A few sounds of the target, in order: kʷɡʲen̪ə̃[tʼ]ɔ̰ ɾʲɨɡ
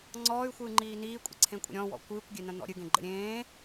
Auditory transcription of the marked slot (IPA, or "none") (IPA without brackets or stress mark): n̪